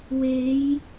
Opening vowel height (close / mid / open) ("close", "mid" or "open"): mid